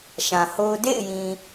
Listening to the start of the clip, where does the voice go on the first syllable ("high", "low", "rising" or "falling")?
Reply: low